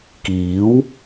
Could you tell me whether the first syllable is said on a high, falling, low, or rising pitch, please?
rising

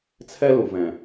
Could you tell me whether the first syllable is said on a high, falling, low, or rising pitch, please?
high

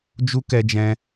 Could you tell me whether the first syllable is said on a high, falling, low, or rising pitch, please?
high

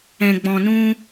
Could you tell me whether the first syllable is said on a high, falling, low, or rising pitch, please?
low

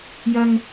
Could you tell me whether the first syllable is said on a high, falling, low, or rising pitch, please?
high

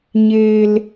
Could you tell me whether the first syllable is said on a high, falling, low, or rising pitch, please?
low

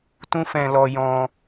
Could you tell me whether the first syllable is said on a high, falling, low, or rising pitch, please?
high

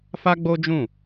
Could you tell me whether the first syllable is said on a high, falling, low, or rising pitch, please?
high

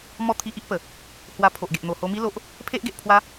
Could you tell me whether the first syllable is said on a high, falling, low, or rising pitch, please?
falling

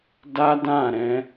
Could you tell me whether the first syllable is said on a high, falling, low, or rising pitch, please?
high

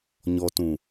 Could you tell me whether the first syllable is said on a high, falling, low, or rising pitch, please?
low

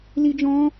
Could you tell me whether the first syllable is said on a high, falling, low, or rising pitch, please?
high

